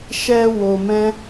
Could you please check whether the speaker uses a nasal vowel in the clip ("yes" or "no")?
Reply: yes